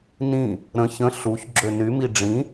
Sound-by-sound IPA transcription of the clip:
nĩ | ɾə̃ çə̃ ɬuç ɡ͡ǁønymi ɖ͡ʐĩ

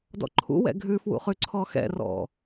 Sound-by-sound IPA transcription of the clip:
dɔ̰ǃʰṵwɛ̰ ɡʱʉfwṵ χʉǀʰɔxɛ̰rɔ̰

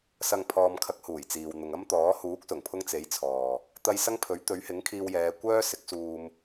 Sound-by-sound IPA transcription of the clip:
sɐ˨ŋ pʰɔː˨mkʰɐ˨˥k̚ huː˨˩jt͡siː˨w n̪ʊ˨ŋɐ˥mt̪ɔː˨˥ huː˨˥k̚sʊ˨˩ŋpʰʊ˧ŋ t͡se˨˥jt͡sʰɔː˨ | t̪ɐ˧jsɐ˥ŋ pʰɵ˨˥ɥ t̪ɵ˨˥ɥhɪ˨˥ŋkʰiː˧wjɛː˨˧ kʷœː˥ sɪ˨˥k̚suː˧m

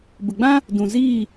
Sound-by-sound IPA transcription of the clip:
bə˨ɡ͡bã˦ | dũ˨ziː˦˨

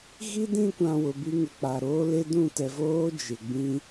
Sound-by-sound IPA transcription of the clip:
ɣi˦dĩ˦˨kʷã˨ wʊ˨bi˦ŋɪ˨k͡pa˨ ɾoː˦le˦ dũ˦˨tɛ˨voː˦ d͡ʒɪ˨ ɡ͡bĩ˦

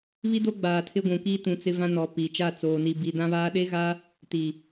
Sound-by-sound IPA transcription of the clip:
βi˦do˦ɡ͡baː˨ tʰɪ˦ɡʷũ˨kiː˦ tũ˨ t͡sɪ˦vã˦nɔ˨ pi˨ t͡ʃa˦˨t͡soː˨ni˨ bi˨dã˦βaː˦ ɗe˦ɣaː˦ | ti˨

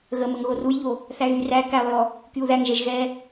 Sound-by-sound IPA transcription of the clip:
ɣə məŋɣorujʎo | θæɣy ræ kælˠjɔ | kyu̯ðæŋʒɛʒ ɣɛ

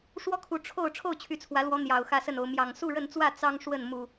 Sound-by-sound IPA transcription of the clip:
ʂwɔ˦kʰu˨˦ ʈ͡ʂʰo˥˨ʊ̯ ʈ͡ʂʰo˥˨ʊ̯t͡ɕʰy˨˦t͡sʰwä˨˦lwɔ˨˦ n̪jɑ˨˩ʊ̯xä˥˨sə˥˨no˨˦ʊ̯ mjɑ˨˩ŋ su˥˨ɻə˥˨nt͡swä˥˨ t͡sɑ˦ŋ ʂwə˥˨nmu˨˩

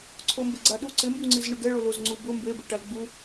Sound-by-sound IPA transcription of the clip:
ǀʰombɪɡ͡ǀaɗu ǀɪmbuŋ͡ǀiz ɳʊɡɛɭo lozŋ͡ǀubʊ mbebe ʈalɡ͡bu

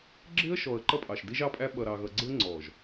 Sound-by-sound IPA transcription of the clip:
ɡ͡ǁɪ˦ə̯ʃɔ˨ə̯ ǃʌ˦pʼɑ˨ʃ di˦ʒɑ˦pʼæ˦ ɓʌ˨ɾɑ˨ɣʌ˨ɡ͡ǀɪ˦ə̯ ŋ͡ǀɔ˨ʒ

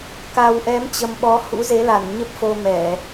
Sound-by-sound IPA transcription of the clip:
ka˨˩wʔɛ˨˦mt͡ɕə˨˩m ɓɔ˨˦ hṵ˧˥ze˨˦la˧˩n ɲə˦˥p̚fo˧mɛ˧˩˨

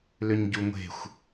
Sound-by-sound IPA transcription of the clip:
lʏɲɟuŋʷe̤xʷ

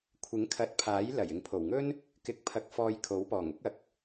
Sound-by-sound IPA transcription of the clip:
kʷʰɪ˨˥ŋkʰɐ˨˥t̚pʰaː˨˥j lɐ˨˩j ɪ˨ŋpʰo˨˩wŋɵ˥n | kɪ˧k̚pʰɐ˧k̚fɔː˧j kʰo˨˥wpɔː˨˩ŋʊ˥k̚ ɐ˨k̚

